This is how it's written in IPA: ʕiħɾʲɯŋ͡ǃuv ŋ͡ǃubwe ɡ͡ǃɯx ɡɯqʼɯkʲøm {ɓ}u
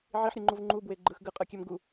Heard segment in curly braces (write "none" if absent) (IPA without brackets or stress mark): ɡ